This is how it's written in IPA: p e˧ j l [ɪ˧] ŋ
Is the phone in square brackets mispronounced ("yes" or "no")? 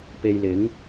yes